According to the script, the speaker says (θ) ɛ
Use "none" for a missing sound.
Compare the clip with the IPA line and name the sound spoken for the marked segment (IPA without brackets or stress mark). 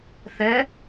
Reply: θ